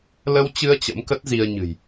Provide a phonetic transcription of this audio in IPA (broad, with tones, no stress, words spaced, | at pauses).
lə˧wt͡ɕɨ˧ə̯ t͡ɕə̰˧˥mkə˦˥t̚zi˧ə̯ɲɨ̤˨˩j